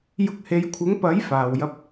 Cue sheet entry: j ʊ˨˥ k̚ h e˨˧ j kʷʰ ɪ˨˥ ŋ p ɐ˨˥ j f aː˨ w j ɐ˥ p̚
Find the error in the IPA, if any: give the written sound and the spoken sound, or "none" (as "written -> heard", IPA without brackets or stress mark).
none